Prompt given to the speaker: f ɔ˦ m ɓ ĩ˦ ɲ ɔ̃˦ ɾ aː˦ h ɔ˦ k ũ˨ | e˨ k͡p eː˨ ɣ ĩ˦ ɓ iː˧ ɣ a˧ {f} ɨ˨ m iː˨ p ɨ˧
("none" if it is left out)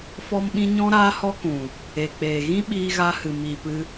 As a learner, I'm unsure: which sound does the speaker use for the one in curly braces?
h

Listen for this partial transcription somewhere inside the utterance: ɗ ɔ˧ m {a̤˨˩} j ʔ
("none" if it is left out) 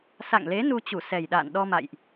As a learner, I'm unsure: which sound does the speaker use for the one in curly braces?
a̰˧˨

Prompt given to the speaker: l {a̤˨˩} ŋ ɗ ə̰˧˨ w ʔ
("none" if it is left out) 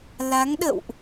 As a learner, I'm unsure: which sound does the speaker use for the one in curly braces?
a˨˦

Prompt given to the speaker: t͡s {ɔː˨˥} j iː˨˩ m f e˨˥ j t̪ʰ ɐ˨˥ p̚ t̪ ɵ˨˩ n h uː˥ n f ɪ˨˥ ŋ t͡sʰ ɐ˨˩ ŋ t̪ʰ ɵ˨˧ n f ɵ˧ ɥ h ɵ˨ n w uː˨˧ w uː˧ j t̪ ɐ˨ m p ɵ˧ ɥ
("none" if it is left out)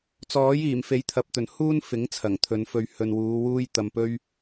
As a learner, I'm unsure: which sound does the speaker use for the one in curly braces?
ɔː˨˥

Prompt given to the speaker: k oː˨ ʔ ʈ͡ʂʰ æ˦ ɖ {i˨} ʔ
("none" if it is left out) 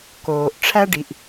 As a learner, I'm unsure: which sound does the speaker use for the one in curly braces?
i˨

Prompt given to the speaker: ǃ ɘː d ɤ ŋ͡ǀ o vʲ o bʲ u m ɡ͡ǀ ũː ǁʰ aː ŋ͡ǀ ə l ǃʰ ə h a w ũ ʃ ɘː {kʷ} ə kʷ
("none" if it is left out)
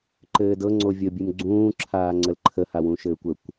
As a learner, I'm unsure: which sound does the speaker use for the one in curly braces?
kʷ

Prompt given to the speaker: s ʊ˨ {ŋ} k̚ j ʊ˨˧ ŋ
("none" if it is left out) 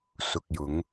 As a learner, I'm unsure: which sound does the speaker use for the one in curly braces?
none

